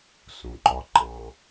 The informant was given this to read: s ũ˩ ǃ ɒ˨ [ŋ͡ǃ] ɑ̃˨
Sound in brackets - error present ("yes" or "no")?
yes